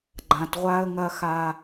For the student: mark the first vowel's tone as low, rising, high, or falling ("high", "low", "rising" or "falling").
low